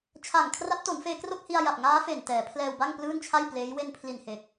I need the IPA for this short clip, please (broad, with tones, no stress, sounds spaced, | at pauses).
t͡ɕʰ a˨˩ ŋ kʰ r a˦˥ p̚ t o˩˦ n f eː˧ k r o˥˩ k̚ h i˧ a̯ j a˨˩ p̚ ŋ aː˦˥ f e˨˩ n t ɛː˩˦ pʰ l ɛː˧ w b a˥˩ ŋ p l ɯː˥˩ n t͡ɕʰ a˥˩ j p l eː˦˥ j w e˧ n pʰ l i˨˩ n h e˨˩ k̚